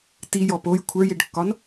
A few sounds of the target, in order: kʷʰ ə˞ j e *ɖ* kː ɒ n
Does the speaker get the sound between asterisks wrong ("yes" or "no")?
no